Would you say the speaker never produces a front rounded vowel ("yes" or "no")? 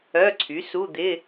no